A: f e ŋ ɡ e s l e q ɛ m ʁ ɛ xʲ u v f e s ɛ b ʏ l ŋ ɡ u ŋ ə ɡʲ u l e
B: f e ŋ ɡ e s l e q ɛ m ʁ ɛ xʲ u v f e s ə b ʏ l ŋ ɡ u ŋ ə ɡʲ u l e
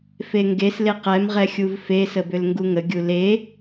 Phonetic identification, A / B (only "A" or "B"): B